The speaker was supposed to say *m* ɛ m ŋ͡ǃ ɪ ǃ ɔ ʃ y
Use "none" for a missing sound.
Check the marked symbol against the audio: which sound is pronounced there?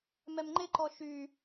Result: m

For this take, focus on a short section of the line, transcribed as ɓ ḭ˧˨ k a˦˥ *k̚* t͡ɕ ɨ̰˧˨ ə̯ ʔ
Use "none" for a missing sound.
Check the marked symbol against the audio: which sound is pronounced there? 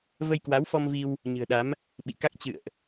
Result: k̚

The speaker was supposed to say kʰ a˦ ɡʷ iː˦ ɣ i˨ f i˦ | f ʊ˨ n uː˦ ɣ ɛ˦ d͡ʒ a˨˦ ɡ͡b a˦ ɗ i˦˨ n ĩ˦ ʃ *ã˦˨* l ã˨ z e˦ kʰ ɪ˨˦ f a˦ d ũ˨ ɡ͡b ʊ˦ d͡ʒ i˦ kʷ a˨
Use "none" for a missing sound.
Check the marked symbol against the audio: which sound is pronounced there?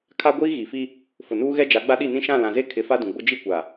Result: ã˦˨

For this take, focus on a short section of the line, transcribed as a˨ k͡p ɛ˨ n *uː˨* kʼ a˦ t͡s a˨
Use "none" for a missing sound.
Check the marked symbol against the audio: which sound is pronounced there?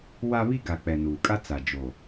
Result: uː˨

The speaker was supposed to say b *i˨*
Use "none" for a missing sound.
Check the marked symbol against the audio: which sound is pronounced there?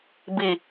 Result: i˨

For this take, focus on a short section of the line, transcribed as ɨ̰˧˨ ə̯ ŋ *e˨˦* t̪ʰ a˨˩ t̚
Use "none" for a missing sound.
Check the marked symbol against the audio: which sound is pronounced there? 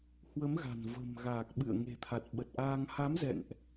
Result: e̤˨˩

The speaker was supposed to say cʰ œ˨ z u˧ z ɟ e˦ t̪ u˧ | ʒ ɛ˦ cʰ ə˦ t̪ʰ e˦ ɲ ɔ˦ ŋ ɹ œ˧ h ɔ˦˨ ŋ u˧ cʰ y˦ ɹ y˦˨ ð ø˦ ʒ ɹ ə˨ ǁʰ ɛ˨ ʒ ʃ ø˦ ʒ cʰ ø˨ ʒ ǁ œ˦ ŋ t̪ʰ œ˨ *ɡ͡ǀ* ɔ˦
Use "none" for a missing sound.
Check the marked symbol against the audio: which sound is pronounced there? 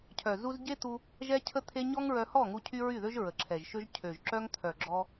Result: ɡ͡ǁ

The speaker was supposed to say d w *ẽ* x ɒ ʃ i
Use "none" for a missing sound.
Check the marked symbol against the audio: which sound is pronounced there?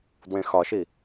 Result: ẽ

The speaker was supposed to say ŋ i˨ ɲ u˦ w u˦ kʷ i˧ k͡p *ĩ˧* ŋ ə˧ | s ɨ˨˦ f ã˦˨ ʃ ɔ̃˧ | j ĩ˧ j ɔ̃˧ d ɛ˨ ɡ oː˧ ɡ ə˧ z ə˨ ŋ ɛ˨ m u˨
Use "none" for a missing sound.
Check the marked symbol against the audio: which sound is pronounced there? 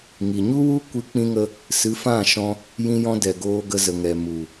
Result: ĩ˧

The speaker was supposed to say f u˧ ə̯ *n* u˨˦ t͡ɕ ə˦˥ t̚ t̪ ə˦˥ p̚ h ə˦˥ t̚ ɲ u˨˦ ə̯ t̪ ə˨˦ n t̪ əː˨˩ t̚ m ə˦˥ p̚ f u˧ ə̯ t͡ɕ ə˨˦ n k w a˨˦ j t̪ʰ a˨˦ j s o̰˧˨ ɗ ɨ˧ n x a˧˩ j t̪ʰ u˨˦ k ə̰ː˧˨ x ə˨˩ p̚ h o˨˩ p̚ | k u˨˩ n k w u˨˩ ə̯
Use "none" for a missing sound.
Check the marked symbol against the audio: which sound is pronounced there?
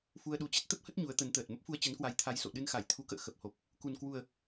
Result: ɗ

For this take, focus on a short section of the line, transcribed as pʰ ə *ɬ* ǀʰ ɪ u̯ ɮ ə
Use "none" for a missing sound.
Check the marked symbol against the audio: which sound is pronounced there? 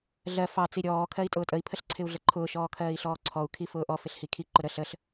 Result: ɬ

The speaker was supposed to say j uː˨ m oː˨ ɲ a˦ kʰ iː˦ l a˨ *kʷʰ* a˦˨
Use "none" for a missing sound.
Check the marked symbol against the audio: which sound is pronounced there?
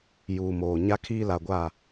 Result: ɡʷ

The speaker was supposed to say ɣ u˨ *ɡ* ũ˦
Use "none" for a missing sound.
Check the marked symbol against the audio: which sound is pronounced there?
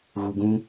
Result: ɡ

